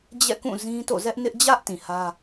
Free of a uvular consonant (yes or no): yes